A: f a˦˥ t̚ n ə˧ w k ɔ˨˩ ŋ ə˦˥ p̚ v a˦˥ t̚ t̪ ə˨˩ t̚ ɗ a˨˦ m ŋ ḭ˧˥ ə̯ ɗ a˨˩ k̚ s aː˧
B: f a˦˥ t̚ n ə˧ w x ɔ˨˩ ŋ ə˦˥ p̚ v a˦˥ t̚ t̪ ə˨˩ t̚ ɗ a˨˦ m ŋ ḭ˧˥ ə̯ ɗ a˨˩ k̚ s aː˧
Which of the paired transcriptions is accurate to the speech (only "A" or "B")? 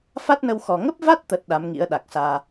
B